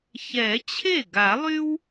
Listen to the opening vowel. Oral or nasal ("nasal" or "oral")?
oral